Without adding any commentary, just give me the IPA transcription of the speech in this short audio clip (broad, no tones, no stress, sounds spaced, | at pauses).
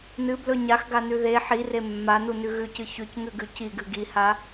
n ɨ b l ɵ ɲ a x ɡ a n ʉ ð e ħ i r e mː a n u n ʉ ɣ ʉ c ɨ ç ʉ c ŋ ʉ ɡ ʉ c i ɡ ɨ ɡ i h a